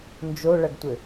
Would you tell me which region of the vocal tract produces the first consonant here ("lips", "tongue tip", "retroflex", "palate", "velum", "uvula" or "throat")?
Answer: tongue tip